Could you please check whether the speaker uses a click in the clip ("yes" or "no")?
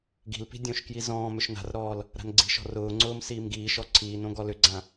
yes